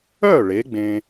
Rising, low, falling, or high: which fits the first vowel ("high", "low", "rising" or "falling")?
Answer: falling